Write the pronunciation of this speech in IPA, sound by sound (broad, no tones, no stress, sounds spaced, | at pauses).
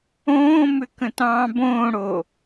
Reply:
õː m ʏ k ə̃ t ɑ̃ː b õː ɽ o